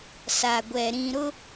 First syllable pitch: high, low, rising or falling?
low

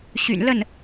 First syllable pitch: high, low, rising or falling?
low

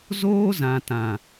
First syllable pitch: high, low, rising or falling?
high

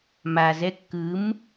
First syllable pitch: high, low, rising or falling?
low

